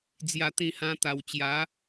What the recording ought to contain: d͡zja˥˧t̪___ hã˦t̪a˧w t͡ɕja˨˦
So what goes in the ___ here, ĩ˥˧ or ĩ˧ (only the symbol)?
ĩ˥˧